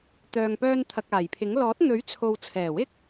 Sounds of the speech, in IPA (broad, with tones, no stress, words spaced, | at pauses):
t̪œː˨ŋpœː˧nt̪ʰɐ˨k̚ aː˨˩jpʰɪ˨˥ŋ lɔː˨˥t̚n̪ɵ˨˥ɥ t͡sʰo˨w t͡sʰɛː˨˩wɪ˥k̚